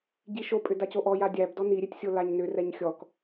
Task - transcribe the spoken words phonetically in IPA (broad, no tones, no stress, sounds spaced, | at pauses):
ɟ i ʃ o pʼ ʏ d a c o ʔ ɔ j a dʲ æ b d ɔ n i ɾʲ e tʲ sʲ o l a ɲ n ʏ r ɛ ɲ xʲ ɔ k